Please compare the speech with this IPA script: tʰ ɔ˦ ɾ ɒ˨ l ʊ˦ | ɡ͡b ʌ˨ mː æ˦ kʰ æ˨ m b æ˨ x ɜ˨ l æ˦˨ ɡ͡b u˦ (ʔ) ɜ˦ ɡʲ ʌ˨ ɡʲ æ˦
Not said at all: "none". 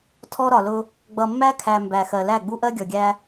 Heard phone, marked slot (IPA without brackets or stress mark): ʔ